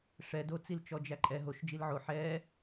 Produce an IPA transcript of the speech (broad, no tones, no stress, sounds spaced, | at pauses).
ʂ ɛ d o t͡s i l t͡ʃ ɔ d͡ʒ æ ǃʼ ɛ ɦ o ʃ d͡ʒ i l ʕ o ħ ɛ